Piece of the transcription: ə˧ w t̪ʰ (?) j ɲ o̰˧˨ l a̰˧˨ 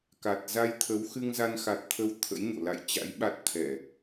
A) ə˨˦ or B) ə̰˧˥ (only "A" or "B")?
B